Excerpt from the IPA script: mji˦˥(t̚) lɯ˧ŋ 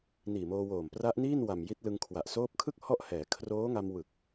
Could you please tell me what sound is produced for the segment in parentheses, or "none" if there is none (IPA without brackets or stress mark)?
t̚